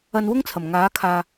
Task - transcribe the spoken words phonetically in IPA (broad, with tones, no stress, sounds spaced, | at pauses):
ɐ˧ n w ʊ˥ ŋ t͡sʰ ɐ˨˩ m ŋ aː˨˥ kʰ aː˨